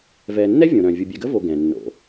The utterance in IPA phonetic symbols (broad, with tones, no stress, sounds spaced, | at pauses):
v ɛː˨ nː ɛ˥ vʲ õ˨ ɾ œ̃˨ vʲ u˨ bʲ ɛ˨ ɡ ə˥ v o˨ ɡ ɛ̃˩ nː o̰˨